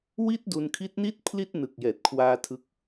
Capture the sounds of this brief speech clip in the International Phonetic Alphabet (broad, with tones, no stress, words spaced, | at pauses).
wi˥˩t̚du˧nkʰi˦˥t̚ni˥˩t̚ pʰli˥˩t̚nɯ˨˩k̚ jɛː˨˩t̚kʰwaː˧tʰɯ˦˥k̚